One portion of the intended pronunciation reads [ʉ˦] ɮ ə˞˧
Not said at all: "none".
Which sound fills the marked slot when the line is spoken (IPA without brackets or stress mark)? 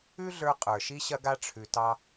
ʉ˦